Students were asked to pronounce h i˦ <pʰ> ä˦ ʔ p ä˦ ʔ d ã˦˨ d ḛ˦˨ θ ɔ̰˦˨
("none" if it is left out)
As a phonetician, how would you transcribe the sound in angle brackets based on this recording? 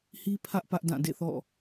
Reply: pʰ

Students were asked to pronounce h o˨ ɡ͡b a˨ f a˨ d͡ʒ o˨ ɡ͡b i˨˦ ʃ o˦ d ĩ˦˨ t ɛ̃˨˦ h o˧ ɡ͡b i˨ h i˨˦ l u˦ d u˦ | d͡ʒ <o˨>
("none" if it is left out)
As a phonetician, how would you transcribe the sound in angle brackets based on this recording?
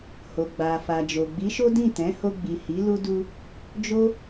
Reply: o˦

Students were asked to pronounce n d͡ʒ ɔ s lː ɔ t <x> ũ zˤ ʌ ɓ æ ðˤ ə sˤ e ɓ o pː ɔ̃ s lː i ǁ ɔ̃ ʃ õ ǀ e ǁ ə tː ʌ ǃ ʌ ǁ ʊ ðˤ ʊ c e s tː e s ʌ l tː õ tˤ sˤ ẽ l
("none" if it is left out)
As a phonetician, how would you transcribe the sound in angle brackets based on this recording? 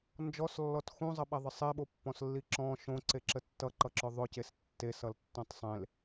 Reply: x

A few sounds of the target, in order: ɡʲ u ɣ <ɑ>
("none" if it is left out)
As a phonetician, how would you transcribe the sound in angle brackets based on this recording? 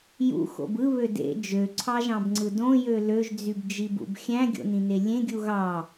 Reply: ɑ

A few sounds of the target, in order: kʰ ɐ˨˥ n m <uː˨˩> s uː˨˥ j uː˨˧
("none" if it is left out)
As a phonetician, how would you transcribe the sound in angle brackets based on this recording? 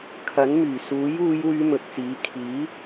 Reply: yː˨˩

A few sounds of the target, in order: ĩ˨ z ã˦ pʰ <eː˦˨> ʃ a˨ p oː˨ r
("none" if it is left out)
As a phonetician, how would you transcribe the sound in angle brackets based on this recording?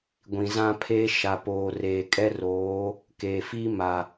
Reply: eː˦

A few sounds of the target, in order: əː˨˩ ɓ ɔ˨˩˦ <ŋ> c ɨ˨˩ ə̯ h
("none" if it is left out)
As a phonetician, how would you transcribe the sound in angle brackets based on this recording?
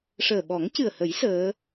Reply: ŋ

